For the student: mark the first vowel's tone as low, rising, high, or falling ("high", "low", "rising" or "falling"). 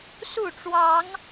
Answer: falling